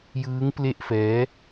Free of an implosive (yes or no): yes